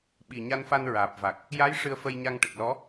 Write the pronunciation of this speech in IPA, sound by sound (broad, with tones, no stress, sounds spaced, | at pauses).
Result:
ɓ i˨˩ ɲ a˧ n f a˧ n ɹ aː˨˩ p̚ v a˨˩ k̚ | j a˧˥ j ʂ ɨ˧ ə̯ f ə˧ j ɲ a˧ ŋ ʈ ə˨˩ k̚ l ɔ˧˥